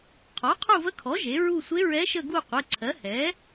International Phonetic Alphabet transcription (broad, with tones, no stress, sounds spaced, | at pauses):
qʰ ɔ˩˥ qʰ u˦˨ v ə˧˥ kʰ ɔ˩˥ ʒ e˩˥ ɹ u˦˨ sʷ e˧˥ ɹ ɛ˧˥ ʃ ə˦˨ ɡ u˦˨ qʷ ə˩˧˩ ǀʰ ɜ˩˥ h ɛ˩˥